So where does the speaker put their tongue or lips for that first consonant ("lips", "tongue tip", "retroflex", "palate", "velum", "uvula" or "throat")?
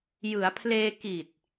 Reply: palate